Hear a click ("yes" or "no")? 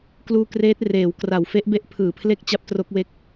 no